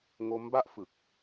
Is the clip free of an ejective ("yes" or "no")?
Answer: yes